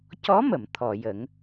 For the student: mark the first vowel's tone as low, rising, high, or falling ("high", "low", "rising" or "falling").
rising